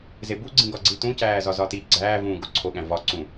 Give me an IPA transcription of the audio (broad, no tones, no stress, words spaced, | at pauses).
zebuɡ͡ǀĩ ɡɒɡ͡ǀitũcæː zɒzɒti ɡ͡ǀæːvũː ɡoǀʰoɠæ̃ vɒ ǀũ